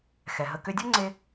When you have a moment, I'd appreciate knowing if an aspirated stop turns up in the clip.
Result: no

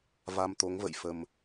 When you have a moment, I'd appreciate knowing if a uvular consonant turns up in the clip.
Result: no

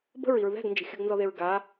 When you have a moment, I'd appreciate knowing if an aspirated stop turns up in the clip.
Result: no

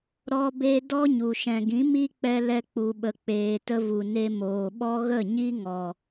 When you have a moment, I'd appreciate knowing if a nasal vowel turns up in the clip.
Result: yes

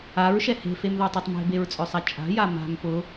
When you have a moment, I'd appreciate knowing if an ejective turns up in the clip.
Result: yes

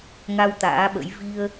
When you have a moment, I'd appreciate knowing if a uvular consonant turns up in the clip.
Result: no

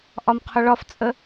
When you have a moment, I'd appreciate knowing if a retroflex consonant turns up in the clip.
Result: yes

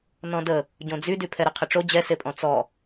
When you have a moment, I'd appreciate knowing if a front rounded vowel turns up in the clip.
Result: yes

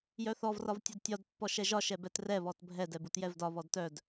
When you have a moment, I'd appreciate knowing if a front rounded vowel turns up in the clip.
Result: yes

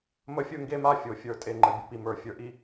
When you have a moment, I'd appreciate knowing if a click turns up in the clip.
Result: yes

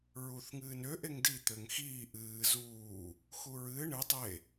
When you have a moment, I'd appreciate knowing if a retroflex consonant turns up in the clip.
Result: yes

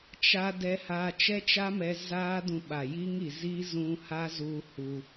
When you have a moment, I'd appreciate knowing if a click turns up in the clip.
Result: no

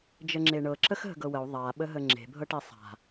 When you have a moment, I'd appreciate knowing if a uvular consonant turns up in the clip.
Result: no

